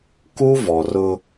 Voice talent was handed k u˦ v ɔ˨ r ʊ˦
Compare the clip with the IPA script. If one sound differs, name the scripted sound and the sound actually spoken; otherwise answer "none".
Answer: none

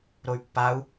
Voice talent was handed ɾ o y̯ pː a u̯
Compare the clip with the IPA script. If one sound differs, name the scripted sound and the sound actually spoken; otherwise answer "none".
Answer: none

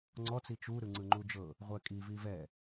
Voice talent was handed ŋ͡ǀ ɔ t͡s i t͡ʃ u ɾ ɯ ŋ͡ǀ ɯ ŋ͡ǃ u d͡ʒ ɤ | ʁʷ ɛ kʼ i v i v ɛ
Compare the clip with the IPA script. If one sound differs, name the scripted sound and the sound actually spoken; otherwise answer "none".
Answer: none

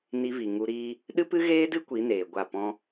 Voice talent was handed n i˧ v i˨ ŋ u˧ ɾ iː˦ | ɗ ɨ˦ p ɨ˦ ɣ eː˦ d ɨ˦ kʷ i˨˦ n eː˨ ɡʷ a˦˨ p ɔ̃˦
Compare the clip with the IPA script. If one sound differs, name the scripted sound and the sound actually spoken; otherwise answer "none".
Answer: none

